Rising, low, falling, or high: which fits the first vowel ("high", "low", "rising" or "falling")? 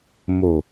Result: low